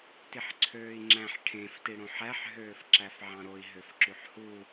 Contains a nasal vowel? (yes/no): yes